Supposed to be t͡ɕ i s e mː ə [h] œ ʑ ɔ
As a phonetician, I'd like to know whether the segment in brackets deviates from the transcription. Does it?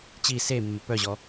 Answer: yes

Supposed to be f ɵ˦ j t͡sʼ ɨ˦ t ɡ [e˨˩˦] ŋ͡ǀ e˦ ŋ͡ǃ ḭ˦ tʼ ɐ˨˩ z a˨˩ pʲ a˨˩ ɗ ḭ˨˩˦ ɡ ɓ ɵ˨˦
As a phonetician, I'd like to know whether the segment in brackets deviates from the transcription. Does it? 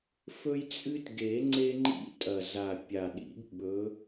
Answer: no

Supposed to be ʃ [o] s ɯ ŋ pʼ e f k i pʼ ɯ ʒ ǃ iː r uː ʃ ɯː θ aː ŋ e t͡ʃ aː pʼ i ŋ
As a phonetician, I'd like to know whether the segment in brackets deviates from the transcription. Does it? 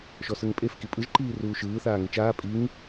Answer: yes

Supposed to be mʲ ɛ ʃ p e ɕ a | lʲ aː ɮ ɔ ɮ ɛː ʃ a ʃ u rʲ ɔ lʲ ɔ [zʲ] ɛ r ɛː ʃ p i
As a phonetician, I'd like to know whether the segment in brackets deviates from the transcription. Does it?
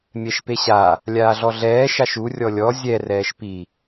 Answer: no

